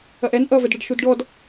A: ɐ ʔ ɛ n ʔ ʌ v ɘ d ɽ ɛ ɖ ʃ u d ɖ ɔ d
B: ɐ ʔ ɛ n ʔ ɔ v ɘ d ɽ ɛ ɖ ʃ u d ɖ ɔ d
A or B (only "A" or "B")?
A